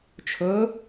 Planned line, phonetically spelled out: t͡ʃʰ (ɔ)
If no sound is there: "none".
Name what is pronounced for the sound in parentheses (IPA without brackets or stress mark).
ɵ